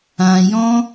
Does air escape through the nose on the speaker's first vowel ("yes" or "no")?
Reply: yes